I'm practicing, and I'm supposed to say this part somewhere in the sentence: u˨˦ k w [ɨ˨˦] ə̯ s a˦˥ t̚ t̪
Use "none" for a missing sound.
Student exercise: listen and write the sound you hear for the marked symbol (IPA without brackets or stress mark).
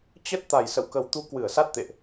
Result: ɨ˧˩